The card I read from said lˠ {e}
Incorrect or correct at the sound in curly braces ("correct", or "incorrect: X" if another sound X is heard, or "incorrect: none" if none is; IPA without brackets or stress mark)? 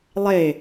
correct